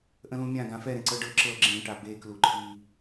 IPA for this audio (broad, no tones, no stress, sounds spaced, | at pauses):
ʔ ə̃ l ũ mʲ ã ɡ ã f ɛ ɾ ẽ ǀ ɤ ɖ ɤ ǁ ɤ ɡ͡ǁ ẽ ʈ a b e k l u ǃʰ i